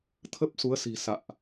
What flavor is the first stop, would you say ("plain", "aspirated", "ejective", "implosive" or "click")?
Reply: aspirated